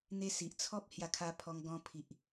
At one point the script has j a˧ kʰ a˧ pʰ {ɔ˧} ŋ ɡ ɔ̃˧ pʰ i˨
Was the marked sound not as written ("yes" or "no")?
no